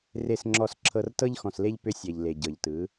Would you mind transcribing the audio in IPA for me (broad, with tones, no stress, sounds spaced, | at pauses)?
r e˨ s ŋ͡ǁ ɔ˨ s ǁʰ ɤ˨ r t ɤ˦ ʎ x ɔ̃˨ s l e˦ ʎ p ʏ˦ sʲ ɛ˨ ʎ l e˨ ɟ ɤ˨ ʎ t ɯ˨˦